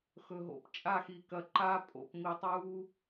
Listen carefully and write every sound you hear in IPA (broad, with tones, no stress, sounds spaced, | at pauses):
x ɵ˨ ɦ o̰˨˦ p t͡ʃʼ a˦˨ x i˨ k ɐ˨ ǃ a˦ pʼ o̰˨ p m i˨ tˤ u˦